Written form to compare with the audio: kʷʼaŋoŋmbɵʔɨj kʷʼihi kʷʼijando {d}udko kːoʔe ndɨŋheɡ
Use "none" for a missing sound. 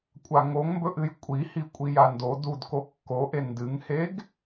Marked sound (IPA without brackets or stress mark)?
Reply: d